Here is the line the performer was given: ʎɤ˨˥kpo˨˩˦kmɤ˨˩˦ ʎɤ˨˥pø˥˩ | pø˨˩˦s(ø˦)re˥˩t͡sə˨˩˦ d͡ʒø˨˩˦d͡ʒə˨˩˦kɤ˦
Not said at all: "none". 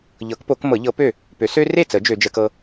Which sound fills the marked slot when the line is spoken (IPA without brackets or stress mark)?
ø˦